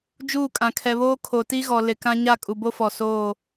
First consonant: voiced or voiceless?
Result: voiced